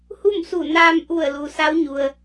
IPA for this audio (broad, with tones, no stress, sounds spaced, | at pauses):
h u˥˨ m s u˧˩ n aː˧ m ʔ u˧˩ ə̯ l u˩ s a˧˥ w ɲ u˩ ə̯